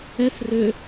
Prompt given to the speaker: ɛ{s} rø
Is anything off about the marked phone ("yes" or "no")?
no